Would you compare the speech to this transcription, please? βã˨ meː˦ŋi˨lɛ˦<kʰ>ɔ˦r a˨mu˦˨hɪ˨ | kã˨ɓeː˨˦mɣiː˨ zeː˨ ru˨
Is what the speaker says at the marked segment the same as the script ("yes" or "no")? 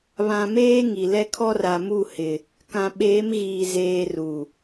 yes